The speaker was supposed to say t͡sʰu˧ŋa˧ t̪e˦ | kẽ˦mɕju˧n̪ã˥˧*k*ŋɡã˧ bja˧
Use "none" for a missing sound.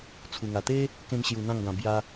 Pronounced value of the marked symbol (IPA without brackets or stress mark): none